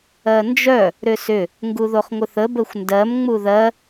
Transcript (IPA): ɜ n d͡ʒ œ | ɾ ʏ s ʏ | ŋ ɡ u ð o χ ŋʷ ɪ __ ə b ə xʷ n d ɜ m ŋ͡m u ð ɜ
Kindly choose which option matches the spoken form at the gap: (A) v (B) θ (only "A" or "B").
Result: B